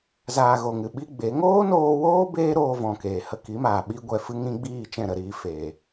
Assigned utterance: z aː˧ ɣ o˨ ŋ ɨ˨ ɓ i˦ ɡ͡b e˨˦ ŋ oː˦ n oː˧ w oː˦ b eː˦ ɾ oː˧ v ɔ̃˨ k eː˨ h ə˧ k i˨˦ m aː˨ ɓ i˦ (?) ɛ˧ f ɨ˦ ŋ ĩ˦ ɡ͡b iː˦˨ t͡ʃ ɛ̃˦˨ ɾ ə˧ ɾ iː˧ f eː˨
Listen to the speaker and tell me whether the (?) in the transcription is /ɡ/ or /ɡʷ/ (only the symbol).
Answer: ɡʷ